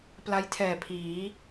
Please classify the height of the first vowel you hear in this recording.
low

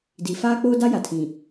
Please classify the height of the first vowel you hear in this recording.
high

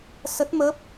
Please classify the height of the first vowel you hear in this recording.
mid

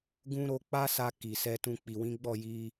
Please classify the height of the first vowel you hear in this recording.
high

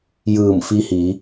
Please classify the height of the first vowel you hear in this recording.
high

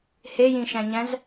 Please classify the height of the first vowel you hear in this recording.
mid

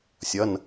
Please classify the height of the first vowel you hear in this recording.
mid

